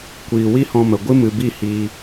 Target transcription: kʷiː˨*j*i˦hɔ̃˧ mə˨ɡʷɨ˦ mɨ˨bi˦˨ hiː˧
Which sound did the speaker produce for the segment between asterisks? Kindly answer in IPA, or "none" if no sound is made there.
w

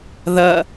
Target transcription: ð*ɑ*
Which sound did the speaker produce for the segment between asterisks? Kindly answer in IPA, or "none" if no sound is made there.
ɐ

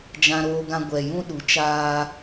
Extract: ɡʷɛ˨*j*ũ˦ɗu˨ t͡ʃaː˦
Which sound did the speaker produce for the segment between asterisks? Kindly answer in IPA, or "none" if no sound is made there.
j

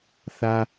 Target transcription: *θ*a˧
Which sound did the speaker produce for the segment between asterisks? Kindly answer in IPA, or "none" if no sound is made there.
θ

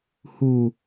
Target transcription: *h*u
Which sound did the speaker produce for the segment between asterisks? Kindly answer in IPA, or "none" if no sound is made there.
h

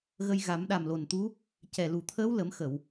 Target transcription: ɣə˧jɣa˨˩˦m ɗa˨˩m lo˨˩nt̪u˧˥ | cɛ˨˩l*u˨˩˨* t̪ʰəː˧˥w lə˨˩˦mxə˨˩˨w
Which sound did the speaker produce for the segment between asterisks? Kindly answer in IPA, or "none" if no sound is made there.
u˨˩˨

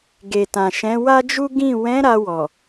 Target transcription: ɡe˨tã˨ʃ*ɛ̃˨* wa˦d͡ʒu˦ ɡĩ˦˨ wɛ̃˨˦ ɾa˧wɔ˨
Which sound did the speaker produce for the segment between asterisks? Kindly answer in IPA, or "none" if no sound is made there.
ɛ̃˨˦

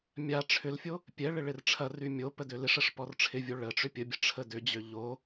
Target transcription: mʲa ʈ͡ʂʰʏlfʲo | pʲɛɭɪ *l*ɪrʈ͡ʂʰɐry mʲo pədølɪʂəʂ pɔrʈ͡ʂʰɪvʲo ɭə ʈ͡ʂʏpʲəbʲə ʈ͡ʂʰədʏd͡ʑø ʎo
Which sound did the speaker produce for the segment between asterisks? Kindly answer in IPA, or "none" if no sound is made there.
ɭ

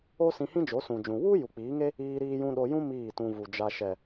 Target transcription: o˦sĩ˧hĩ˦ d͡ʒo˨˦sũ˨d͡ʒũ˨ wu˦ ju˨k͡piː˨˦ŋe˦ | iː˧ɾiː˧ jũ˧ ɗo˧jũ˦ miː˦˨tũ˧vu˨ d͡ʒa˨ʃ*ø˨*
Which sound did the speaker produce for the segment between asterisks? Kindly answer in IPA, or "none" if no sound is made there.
ɛ˨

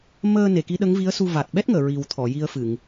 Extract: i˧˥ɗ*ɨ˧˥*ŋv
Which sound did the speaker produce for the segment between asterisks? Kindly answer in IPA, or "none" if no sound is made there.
ə˧˥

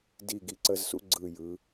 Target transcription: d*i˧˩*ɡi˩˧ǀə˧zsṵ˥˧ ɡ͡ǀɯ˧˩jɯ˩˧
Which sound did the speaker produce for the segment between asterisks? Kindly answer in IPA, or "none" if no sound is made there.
i˧˩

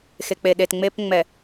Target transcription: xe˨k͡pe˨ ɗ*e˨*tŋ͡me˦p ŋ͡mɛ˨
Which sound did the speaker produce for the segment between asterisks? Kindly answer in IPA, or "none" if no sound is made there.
e˨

